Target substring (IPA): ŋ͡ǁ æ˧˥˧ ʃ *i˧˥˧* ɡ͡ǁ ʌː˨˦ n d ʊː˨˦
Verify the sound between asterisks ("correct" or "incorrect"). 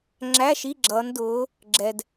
correct